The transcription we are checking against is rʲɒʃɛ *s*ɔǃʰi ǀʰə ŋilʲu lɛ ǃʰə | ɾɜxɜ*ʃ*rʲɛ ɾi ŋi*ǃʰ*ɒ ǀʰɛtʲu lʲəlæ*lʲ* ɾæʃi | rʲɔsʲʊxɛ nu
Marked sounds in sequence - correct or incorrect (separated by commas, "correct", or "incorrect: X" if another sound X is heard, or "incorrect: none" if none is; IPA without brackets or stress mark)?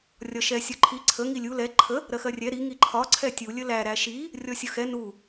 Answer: incorrect: sʲ, incorrect: none, correct, incorrect: none